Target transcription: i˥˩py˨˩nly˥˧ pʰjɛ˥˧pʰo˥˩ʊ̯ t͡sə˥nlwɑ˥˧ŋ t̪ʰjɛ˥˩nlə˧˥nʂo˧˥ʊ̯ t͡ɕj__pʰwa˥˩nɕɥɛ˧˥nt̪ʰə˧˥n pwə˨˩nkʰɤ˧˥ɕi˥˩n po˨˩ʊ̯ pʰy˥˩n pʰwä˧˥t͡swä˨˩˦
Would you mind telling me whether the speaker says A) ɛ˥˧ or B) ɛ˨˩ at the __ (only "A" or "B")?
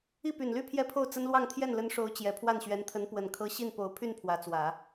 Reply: B